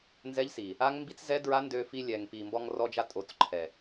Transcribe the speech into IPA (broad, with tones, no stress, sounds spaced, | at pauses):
n z ɛ˦ ʎ s i˨ | a˦ ŋ m b i˦ t͡s z ɛ˦ d ɹ a˦ n d ø˧ f i˧ lʲ ɛ˨ ŋ p i˨ m b ɔ˧ ŋ r ɔ˧ d͡ʒ a˧ tʼ o˨˦ t͡s ǃʰ ɛ˨